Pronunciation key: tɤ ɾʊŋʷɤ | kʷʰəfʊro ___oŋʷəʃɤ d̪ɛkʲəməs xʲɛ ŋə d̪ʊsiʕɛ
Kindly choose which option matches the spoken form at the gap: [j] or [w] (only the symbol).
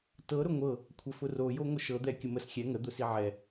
j